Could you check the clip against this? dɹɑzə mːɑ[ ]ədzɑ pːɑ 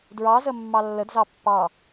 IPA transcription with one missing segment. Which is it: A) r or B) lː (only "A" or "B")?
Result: B